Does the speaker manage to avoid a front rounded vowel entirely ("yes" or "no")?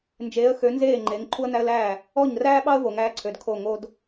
no